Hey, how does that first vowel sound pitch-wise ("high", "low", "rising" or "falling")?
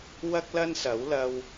high